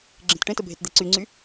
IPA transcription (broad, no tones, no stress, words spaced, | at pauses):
ɡ͡ǁẽtʈẽtə bʱetd̪eǀyŋ͡ǀy